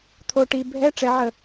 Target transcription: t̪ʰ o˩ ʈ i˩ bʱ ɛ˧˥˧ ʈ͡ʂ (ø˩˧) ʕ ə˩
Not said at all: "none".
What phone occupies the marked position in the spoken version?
ɛ˩˧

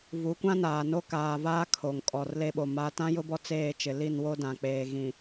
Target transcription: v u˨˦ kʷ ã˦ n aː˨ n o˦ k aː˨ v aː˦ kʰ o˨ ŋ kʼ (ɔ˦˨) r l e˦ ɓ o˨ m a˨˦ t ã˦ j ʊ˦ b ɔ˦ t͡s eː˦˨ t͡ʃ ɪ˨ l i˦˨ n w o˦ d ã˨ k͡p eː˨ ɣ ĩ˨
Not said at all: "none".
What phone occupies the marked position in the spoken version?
ɔ˨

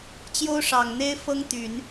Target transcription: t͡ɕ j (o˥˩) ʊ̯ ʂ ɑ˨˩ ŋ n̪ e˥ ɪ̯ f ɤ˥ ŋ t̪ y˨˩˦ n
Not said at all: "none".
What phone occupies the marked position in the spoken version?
o˥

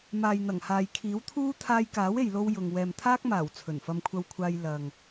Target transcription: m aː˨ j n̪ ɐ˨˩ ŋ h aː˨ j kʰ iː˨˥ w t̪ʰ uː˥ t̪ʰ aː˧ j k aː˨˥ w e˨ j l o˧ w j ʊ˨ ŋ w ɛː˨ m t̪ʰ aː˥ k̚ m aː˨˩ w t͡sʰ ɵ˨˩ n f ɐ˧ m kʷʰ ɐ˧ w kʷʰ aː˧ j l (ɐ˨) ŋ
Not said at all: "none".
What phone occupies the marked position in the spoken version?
ɐ˨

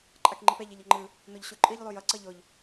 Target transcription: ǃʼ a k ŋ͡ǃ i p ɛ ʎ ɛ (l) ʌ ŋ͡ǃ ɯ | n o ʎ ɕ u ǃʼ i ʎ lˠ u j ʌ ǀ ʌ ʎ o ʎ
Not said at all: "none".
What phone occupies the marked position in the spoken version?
ʎ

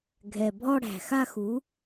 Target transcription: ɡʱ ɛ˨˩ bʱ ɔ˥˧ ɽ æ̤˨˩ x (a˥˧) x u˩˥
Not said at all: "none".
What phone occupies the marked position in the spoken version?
a˥˧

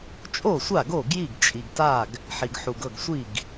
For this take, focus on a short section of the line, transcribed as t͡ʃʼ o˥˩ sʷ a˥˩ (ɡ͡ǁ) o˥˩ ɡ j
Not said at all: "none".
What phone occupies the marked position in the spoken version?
ɡ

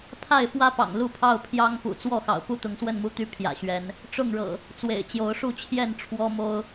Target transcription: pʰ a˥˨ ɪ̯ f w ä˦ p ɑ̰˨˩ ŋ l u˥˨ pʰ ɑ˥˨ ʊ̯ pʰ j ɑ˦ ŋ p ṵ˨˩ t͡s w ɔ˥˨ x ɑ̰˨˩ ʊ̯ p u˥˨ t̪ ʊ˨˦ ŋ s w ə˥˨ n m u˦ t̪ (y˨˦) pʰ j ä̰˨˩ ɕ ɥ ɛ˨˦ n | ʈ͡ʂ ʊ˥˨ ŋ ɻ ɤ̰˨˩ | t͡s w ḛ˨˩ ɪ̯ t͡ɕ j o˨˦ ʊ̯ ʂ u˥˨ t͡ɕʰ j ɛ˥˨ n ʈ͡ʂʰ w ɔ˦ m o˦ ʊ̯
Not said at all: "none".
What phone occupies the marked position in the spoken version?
y˦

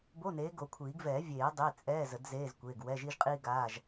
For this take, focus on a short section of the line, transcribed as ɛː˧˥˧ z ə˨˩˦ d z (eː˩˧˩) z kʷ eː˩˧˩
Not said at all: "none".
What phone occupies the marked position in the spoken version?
eː˧˥˧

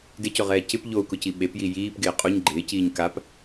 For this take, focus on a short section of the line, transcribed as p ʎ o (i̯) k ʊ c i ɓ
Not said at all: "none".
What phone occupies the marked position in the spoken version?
u̯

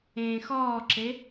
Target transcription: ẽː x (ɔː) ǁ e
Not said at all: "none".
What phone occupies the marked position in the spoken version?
ɔː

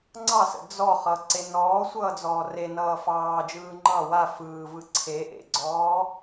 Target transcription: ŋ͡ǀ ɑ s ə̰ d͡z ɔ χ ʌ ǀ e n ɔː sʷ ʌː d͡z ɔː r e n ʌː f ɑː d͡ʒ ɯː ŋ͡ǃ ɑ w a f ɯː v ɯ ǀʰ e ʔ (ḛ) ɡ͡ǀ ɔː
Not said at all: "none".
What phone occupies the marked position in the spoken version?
ḛ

